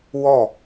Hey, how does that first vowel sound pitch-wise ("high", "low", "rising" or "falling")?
falling